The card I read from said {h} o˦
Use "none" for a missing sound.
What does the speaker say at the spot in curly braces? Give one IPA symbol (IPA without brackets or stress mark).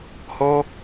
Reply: h